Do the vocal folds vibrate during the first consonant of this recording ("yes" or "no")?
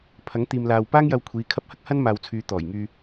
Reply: no